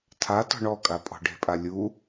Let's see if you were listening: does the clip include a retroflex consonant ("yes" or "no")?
yes